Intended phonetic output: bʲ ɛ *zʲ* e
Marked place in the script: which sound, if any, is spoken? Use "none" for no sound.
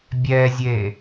zʲ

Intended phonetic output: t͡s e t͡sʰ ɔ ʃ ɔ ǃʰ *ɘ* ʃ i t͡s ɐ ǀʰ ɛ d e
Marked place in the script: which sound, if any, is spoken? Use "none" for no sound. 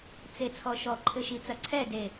ɘ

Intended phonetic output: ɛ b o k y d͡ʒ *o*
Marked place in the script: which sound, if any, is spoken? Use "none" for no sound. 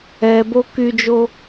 o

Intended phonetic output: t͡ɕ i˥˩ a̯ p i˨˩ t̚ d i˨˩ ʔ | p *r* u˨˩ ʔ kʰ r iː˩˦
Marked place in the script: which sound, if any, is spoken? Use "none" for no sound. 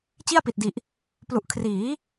l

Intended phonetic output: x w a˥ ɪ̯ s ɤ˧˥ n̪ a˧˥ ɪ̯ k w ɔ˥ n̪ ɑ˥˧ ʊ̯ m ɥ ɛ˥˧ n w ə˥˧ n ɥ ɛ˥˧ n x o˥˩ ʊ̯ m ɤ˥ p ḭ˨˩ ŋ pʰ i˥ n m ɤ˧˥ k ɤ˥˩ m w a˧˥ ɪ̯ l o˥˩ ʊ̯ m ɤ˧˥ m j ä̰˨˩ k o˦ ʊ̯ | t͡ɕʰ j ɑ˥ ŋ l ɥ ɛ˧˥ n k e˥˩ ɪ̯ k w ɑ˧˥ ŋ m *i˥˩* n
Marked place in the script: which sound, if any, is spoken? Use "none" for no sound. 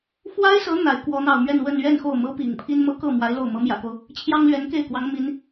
i˧˥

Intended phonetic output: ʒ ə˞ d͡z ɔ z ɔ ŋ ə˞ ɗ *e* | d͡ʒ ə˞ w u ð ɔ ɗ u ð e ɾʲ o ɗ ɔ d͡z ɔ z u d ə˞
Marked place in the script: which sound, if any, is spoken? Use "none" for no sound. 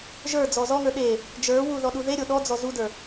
e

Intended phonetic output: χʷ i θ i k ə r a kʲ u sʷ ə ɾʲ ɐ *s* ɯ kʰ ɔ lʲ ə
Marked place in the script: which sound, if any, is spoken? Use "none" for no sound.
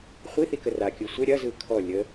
z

